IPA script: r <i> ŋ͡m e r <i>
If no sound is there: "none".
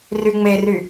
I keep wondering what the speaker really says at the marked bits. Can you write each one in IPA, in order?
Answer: y, y

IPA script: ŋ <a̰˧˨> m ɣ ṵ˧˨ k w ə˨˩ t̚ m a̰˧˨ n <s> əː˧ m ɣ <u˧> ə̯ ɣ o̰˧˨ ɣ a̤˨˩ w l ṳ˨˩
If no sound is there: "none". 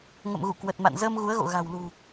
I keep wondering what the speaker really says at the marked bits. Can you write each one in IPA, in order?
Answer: ə̰˧˨, z, u˨˦

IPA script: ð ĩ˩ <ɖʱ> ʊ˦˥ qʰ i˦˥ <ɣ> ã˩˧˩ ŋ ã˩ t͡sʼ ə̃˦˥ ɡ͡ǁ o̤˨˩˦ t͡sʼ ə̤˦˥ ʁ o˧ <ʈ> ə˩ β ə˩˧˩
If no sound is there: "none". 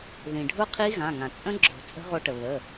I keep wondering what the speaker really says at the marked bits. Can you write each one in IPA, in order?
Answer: ɖʱ, ɣ, ʈ

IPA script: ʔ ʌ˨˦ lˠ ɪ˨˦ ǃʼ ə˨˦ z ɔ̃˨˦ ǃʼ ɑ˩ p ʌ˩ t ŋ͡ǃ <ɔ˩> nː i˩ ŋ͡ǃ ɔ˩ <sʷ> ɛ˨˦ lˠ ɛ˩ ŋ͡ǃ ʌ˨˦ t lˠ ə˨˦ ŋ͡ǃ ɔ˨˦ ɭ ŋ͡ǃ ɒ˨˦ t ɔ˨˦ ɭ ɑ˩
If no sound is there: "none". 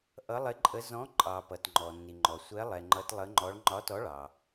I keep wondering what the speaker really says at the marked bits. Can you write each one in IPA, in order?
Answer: ɔ˩, sʷ

